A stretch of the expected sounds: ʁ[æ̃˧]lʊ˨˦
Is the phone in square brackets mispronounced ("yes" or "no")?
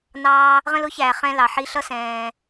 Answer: yes